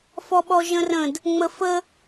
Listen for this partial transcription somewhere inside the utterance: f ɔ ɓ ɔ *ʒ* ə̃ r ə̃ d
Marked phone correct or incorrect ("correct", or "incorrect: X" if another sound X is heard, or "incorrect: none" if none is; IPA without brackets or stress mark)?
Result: correct